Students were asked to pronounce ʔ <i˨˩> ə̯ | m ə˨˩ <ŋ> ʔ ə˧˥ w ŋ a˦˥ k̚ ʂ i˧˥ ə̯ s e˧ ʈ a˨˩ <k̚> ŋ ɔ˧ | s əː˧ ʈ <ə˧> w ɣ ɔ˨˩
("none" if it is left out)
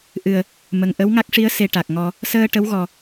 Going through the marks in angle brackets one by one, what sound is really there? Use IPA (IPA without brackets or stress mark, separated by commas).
ɨ˨˩, ŋ, k̚, ə˧˥